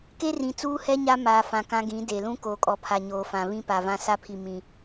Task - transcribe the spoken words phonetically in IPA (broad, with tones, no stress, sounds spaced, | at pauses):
k e˦ r ĩ˨ t͡s uː˦ h ɛ˦ ɲ a˦ m aː˨ f ã˨ k ã˦ ɡ ĩ˨˦ d e˨ l ũ˦ k oː˨ kʼ ɔ˨ pʰ a˨ ɲ oː˨ f ã˨ β ĩ˦ p a˨ v ã˦ s a˦ pʰ i˨ m ĩ˨